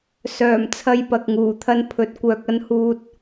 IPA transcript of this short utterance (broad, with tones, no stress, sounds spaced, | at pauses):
s œː˨˩ m t͡sʰ ɐ˧ j p ɐ˨ k̚ ŋ uː˨˩ t̪ʰ ɐ˧ n pʰ ɵ˨ t̚ kʷ œː˧ k̚ ɐ˥ n h uː˥ t̚